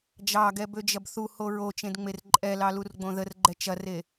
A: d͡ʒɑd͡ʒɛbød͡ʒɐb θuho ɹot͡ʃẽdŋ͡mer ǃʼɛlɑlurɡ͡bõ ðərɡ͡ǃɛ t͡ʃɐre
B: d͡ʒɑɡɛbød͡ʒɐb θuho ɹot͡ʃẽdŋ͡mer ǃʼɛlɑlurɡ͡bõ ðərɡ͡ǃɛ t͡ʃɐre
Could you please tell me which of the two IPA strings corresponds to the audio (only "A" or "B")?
B